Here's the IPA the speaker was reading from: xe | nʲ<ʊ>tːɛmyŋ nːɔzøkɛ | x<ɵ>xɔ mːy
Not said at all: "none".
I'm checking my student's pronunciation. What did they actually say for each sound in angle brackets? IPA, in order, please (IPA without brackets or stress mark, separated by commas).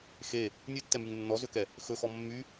ʉ, ɵ